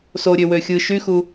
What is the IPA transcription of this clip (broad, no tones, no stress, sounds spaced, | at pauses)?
s o ɾʲ ø w ø xʲ ɯ ʃ y x u